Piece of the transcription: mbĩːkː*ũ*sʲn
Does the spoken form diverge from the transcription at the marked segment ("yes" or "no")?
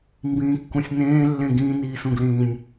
no